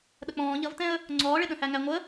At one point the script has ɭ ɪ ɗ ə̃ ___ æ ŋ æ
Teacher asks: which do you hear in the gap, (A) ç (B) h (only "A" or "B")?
B